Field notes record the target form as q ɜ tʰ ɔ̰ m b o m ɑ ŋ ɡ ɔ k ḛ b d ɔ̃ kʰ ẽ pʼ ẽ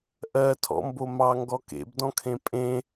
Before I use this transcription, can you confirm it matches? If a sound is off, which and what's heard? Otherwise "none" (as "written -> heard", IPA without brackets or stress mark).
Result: q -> ʔ